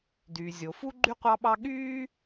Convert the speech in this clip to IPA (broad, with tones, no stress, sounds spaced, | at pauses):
d yː˩ zʲ o˩ f u˥ ɡ͡ǃ y˥ qʷ ɑ˥ ɓ ɑ˥ ɠ yː˥